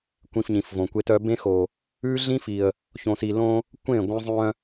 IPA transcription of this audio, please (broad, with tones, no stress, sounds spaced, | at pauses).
kʷ ĩ˨ f ɲ ĩ˨ f v õ˨ kʷ e˦ t œ˦ b ẽ˦ x o˨ | ʉ˦ ɮ ĩ˦ f i˨ ə̯ | ç õ˨ s i˨ l õ˦ | kʷ ẽ˦˨ ɡʷ ẽ˦ zˤ œ̃˦